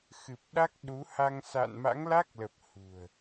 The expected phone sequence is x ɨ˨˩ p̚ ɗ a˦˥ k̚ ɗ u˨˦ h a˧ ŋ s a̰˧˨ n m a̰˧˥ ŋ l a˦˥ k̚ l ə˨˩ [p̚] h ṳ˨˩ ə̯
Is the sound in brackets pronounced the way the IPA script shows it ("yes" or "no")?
yes